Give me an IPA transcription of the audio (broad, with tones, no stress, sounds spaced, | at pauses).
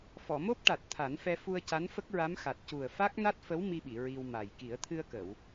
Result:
f ɔ˨˩˨ m o˦˥ p̚ ʈ a˨˩ t̚ t̪ʰ a˨˩˦ n f ɛ˧ f u˧ ə̯ c a˧˥ n f ə˦˥ k̚ ɹ a˧˥ m x a˨˩ t̚ c u˨˩ ə̯ f a˦˥ k̚ n a˦˥ t̚ f ə˧˥ w m i˧ ɓ i˨˩˨ ɹ i˧ w m a˨˩ j k i˨˩˦ ə̯ t̪ʰ ɨ˧ ə̯ k ə˨˩˨ w